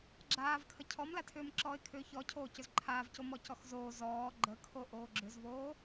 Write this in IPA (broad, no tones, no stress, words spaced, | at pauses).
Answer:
ɡ͡ǁaːvkʰə cʰɔmlatʰʏːmǁɔːɪ̯ kʰʏːçɔcʰoː cʏzǃʰaːvco mɔcɔxzoː zɔː ɡ͡ǃəkʰo ʔoːɡ͡ǁʏzvoː